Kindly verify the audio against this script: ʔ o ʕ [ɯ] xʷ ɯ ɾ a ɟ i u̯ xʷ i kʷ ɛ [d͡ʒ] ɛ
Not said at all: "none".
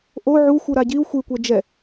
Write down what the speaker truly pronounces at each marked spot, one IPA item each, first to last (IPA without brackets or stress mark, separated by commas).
u, d͡ʒ